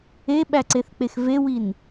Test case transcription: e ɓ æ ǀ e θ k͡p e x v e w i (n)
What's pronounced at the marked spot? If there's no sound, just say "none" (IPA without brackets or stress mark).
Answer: n